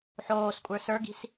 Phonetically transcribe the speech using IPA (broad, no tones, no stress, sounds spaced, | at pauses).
ħ oː s kʷʼ ə˞ s ə˞ ɡ i̤ s